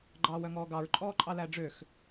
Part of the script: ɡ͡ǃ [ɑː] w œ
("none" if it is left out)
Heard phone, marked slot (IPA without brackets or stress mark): ɑː